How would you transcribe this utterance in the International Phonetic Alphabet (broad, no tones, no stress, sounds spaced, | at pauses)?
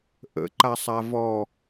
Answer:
ʔ ə̰ ǃ a sˤ a v ɔ